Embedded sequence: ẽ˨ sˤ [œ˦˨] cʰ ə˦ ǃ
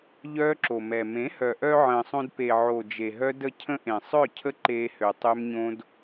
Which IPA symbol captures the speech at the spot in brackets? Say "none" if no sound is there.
œ˦˨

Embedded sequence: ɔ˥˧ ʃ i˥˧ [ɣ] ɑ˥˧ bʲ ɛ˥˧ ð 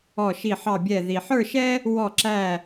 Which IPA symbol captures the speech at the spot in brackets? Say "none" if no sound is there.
ħ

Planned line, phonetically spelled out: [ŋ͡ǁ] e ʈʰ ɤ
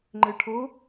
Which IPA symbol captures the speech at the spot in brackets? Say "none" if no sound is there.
ŋ͡ǃ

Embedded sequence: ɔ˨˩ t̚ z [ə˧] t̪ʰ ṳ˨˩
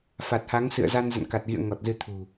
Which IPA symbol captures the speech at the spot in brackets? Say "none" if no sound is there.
ɨ˧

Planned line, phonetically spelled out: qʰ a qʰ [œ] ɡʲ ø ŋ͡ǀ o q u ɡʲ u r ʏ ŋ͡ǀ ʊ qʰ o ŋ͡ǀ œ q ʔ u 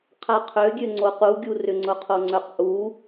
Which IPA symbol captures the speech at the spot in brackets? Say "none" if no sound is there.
ø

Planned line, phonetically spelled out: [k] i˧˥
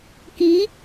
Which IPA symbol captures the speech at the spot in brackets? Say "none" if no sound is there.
k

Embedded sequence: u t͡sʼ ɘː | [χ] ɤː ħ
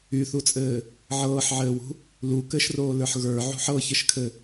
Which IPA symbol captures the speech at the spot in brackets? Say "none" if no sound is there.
ʕ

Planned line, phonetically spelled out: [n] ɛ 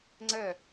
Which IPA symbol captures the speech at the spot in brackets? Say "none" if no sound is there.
ŋ͡ǀ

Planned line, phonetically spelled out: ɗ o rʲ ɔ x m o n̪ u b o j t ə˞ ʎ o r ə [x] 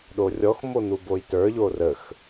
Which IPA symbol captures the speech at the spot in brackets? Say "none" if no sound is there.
x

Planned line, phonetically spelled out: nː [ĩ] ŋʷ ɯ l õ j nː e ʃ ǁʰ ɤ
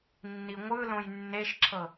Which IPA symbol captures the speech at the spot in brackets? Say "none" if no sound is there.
i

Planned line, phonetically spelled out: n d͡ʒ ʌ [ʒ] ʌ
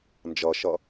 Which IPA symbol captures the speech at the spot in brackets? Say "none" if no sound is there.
ʃ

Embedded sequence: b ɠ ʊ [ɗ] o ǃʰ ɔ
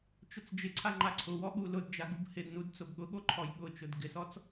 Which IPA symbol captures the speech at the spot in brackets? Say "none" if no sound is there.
ɠ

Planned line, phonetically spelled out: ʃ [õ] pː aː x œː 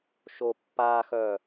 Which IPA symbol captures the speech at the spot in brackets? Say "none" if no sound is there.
o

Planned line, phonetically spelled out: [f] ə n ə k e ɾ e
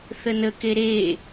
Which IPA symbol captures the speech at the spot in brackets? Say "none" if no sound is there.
θ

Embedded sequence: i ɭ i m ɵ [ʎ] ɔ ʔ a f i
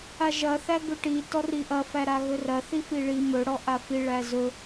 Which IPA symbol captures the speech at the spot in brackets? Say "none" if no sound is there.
ɽ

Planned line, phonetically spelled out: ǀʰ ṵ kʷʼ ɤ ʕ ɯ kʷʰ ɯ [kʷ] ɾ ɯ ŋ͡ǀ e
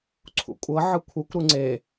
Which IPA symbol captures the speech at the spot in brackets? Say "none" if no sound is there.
kʷ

